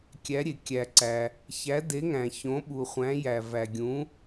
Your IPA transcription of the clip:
kʲ æ˨˦ ɾʲ e˨ kʲ æ˨ ǀ æ˨ | ç æ˨˦ d e˨˦ ŋ æ̃˨ ç õ˨˦ ɓ u˨ χʷ æ̃˨˦ j æ˨ v æ˨ ɡʲ ũ˨˦

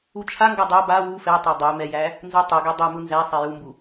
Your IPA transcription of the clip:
u t͡ʃʰ a ŋ ɡ a dˤ ɛ b a w u f ɛ tˤ a dˤ ɛ m ɛ j æ | n z u tˤ u ɡ ɛ dˤ ɛ m u n z æ sˤ ɛ j u m b u

